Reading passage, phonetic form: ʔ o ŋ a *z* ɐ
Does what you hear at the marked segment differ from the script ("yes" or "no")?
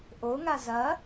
no